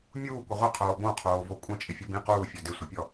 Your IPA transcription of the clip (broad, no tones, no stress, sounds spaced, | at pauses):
mʲ uː kʷ ə ʁʷ ə qʰ oː b õ qʰ oː v o kʷʼ ə̃ t͡ʃʼ ɪ fʲ o b ĩ q uː fʲ ɔ d ɪ sʷ ɪ pʲ ɔ